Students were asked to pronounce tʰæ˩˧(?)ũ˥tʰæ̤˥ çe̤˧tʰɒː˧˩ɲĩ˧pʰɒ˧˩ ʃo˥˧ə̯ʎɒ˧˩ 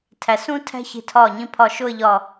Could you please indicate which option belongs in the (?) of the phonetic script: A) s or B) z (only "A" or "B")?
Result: A